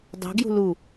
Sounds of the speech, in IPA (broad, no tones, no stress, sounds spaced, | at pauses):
dˤ ṳ ɡ j ṳ l u